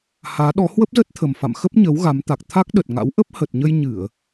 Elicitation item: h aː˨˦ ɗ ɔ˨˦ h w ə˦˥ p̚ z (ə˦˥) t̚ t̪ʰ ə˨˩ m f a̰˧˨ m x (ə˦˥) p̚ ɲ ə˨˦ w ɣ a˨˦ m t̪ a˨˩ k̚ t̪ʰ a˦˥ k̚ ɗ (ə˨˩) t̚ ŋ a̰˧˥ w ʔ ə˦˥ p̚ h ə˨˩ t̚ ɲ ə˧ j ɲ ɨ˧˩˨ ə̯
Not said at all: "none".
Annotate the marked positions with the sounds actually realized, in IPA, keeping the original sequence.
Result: ə˦˥, ə˦˥, ə˨˩

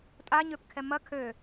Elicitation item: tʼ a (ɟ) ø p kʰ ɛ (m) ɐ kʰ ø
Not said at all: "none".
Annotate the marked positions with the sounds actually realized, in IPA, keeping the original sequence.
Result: ɲ, m

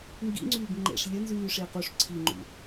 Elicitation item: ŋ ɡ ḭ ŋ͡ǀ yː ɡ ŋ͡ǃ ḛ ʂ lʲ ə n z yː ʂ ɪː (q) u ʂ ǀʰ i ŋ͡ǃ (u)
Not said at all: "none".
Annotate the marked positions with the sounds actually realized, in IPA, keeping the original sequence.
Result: q, ṵ

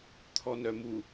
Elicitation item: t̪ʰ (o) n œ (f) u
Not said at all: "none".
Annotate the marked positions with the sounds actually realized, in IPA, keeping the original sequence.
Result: ɔ, m

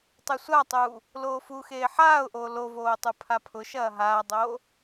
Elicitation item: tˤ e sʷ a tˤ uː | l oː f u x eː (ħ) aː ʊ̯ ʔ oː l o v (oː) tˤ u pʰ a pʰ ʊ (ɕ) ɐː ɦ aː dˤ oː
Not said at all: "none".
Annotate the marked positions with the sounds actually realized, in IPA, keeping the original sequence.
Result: ħ, oː, ʃ

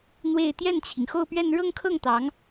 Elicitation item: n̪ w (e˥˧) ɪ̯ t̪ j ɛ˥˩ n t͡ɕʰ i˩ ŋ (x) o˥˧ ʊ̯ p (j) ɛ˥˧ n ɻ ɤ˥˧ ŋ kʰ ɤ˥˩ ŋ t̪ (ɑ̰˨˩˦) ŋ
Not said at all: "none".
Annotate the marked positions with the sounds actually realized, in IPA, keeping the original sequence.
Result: e˥˧, x, ɥ, ɑ˧˥

